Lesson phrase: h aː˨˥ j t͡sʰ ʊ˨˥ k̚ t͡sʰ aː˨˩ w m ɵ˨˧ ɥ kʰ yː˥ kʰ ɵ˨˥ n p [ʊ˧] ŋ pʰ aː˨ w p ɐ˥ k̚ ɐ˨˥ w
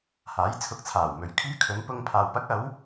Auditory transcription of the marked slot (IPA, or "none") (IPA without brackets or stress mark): ʊ˧